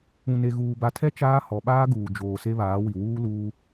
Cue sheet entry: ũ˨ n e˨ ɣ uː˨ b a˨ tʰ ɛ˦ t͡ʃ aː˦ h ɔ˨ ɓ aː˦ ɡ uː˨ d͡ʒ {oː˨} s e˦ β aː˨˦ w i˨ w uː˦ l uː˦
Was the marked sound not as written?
no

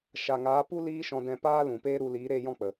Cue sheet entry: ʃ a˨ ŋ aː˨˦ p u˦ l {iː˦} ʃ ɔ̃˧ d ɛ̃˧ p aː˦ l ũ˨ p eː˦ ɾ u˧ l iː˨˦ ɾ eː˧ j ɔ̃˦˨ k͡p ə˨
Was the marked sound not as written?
no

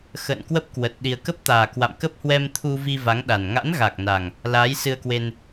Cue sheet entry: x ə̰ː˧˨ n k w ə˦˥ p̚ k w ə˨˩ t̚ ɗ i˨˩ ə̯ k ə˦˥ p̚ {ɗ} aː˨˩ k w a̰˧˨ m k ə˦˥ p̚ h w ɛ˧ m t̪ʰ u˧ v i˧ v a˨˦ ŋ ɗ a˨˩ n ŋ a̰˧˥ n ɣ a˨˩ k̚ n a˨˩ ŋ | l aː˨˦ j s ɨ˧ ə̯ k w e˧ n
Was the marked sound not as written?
yes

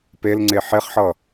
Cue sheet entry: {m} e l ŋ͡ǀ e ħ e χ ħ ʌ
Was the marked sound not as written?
yes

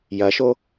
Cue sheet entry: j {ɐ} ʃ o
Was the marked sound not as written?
no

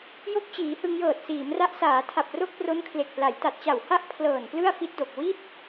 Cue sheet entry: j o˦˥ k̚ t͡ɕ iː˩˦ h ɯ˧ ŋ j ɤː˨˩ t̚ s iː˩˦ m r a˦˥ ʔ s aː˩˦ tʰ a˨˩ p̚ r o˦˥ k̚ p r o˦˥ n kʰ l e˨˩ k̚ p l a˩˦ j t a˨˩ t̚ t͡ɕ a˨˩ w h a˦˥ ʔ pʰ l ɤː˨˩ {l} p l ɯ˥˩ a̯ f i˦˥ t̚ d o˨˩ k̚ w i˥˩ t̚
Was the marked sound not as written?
yes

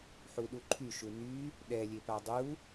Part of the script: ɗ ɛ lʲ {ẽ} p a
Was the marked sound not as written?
yes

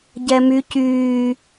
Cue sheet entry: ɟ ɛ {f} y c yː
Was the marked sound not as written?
yes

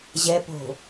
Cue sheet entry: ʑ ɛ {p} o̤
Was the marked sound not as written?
no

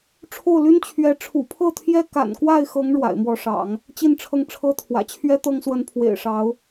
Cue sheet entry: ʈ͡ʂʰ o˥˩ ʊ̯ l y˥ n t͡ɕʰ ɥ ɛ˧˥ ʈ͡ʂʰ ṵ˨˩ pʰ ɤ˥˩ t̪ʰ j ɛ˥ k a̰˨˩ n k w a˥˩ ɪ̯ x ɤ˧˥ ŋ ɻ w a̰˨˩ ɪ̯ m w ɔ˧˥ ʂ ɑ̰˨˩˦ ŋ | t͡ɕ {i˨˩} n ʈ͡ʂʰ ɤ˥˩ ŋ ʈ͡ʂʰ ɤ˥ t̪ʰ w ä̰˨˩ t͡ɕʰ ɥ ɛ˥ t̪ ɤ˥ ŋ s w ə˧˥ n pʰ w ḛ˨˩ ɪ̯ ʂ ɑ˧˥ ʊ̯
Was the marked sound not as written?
yes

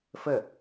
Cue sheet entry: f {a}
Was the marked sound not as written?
yes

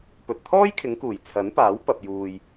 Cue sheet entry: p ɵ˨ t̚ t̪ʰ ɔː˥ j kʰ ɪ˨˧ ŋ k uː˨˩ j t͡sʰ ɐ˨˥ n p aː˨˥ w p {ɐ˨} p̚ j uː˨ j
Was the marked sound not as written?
no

